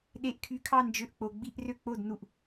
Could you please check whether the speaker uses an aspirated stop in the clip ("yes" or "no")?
yes